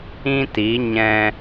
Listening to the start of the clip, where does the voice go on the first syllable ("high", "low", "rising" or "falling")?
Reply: high